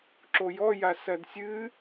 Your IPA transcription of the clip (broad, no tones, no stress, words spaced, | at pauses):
ǁojɔja sɐdsʲɨ